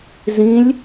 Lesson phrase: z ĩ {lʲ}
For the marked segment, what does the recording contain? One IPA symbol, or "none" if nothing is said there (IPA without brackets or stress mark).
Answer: lʲ